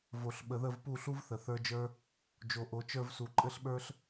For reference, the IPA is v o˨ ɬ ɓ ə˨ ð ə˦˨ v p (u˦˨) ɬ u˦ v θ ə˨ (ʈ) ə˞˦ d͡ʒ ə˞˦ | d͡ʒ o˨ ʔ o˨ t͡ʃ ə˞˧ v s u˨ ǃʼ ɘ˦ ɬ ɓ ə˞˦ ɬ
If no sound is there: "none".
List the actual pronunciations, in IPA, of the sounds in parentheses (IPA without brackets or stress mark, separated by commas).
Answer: u˦˨, θ